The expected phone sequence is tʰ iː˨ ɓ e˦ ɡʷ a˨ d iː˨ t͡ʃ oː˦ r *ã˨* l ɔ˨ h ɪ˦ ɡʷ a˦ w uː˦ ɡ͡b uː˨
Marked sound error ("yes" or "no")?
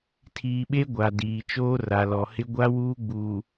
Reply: yes